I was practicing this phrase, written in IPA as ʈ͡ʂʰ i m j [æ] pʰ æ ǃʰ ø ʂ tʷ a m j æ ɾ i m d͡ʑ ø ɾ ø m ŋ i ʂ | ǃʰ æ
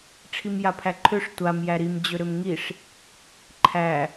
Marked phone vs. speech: incorrect: a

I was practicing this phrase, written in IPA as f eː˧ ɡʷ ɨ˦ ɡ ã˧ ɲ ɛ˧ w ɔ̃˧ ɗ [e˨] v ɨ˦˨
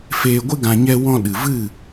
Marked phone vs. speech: incorrect: ɨ˨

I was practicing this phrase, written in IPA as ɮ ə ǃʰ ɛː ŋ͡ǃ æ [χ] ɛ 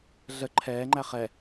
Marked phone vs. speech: correct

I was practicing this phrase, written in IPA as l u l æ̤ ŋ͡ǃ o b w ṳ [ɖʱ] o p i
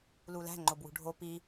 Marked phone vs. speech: correct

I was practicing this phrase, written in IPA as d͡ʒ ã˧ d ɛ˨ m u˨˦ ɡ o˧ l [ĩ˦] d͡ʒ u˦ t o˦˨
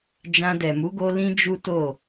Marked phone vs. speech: correct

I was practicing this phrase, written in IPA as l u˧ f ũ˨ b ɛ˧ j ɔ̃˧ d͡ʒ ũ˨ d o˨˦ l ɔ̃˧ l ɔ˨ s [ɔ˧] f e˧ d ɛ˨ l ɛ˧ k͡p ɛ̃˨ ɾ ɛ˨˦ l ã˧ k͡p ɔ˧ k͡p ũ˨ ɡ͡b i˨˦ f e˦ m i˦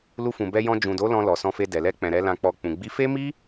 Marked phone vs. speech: incorrect: ɔ̃˧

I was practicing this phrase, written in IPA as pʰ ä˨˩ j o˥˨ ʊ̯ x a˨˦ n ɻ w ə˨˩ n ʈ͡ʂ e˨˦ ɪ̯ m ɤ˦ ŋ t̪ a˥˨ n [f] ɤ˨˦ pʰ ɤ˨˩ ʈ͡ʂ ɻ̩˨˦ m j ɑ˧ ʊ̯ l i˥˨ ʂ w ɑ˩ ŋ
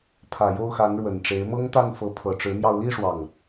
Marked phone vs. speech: correct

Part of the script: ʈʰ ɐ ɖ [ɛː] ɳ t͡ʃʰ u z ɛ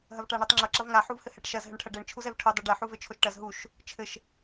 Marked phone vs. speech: incorrect: ɛ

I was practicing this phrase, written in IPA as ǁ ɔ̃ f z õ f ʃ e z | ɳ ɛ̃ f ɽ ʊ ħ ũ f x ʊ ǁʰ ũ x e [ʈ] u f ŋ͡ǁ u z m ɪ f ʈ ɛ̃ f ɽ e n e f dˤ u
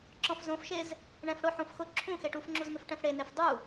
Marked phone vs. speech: correct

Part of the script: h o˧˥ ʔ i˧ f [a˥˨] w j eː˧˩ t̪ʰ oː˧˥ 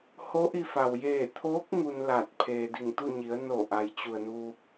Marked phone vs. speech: incorrect: a˩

